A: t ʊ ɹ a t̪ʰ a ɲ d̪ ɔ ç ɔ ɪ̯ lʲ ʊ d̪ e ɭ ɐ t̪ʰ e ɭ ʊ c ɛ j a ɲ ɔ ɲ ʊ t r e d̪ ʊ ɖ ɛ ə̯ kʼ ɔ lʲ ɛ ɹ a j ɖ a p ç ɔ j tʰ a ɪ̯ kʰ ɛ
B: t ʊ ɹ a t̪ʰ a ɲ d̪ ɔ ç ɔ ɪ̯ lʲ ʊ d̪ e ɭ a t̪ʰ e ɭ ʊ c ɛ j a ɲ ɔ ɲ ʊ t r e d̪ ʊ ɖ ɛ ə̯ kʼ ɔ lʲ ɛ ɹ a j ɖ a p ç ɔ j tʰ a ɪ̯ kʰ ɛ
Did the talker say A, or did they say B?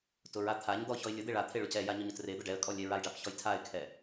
B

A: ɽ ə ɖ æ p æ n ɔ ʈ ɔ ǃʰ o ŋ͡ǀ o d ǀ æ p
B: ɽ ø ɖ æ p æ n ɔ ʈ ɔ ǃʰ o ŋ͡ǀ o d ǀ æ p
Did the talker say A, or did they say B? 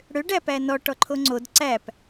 B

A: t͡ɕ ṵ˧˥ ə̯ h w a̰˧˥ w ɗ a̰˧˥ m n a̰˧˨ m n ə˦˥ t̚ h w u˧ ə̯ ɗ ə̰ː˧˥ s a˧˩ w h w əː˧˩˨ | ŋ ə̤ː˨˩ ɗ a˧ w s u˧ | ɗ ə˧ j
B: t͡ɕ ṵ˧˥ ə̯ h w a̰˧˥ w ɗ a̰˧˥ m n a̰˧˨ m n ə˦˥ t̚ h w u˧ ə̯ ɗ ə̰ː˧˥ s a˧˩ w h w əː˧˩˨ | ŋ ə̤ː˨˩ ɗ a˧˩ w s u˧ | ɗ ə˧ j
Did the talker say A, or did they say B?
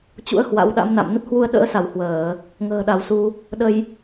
B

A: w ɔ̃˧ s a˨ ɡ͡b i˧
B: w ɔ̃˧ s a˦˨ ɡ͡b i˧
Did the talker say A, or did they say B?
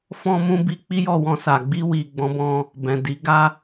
A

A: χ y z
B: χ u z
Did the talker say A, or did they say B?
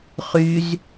A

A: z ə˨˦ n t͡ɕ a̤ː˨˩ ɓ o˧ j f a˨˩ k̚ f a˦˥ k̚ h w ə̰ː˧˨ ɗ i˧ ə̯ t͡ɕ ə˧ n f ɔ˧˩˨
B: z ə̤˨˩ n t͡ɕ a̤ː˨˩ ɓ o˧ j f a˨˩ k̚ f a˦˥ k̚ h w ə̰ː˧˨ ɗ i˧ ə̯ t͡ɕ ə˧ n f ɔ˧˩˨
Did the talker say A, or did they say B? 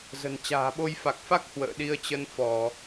B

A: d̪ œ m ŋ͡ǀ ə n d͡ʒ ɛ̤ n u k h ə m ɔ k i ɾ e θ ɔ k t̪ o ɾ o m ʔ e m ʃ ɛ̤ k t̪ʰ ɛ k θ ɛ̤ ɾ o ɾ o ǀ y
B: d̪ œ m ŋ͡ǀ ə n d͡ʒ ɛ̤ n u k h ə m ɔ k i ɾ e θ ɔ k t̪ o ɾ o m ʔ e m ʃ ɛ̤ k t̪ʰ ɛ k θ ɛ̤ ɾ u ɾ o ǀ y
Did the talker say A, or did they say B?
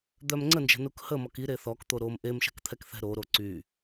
A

